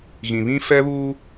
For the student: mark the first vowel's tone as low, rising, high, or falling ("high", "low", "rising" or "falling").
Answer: low